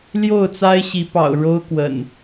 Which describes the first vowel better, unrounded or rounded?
rounded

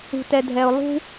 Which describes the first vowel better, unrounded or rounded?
rounded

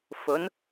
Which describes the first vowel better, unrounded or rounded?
rounded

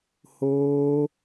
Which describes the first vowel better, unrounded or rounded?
rounded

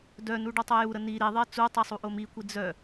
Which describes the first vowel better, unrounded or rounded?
rounded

